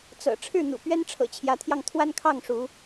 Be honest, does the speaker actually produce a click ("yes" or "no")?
no